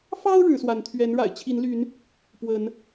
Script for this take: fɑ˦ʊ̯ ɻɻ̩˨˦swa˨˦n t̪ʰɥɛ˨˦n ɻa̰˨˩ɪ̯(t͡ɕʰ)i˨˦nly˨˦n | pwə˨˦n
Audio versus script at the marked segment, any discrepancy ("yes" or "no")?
no